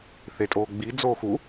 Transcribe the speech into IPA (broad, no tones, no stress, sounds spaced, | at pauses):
θ e tʼ oː ɡ͡b i d͡z oː x u